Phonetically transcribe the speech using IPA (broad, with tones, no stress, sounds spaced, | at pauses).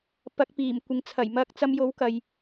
p ɐ˨˥ k̚ p iː˨˩ m kʷ ɪ˨ ŋ t͡sʰ ɐ˨˩ j m ɐ˧ k̚ t͡s ɐ˧ m j o˨˥ w k ɐ˨ j